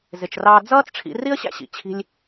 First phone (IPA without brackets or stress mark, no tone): z